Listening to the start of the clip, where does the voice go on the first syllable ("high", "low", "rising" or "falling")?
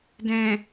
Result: low